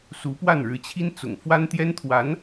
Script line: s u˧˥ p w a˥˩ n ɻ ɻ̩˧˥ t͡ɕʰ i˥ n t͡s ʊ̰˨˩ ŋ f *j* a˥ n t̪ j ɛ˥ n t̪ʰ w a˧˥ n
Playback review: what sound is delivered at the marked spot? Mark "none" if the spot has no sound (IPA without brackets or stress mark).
w